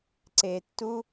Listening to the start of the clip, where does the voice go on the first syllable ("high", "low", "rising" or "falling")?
low